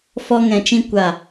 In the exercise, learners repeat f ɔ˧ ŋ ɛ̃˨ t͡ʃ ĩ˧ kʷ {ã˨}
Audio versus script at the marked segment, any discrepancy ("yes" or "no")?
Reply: yes